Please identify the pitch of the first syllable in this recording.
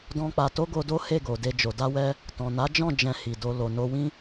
high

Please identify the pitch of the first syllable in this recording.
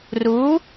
rising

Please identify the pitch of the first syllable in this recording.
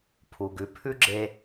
low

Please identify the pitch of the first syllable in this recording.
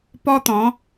high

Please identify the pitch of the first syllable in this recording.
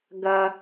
high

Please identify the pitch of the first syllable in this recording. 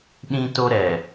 high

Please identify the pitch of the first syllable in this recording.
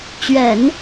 low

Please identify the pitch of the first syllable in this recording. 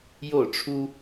falling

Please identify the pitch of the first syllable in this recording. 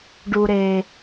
low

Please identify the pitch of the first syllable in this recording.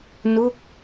falling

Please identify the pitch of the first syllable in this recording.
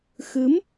rising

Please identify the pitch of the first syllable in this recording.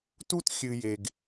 high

